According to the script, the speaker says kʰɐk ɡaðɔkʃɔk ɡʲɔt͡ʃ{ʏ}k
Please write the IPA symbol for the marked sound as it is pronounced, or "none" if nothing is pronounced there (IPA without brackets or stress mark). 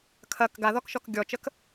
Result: ə